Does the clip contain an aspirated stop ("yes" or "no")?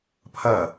yes